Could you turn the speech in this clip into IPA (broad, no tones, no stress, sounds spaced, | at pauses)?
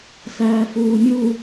s æː f uː mʲ u